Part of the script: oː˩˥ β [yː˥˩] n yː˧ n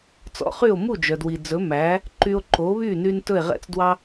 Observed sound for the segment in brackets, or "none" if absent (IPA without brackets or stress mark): yː˥˩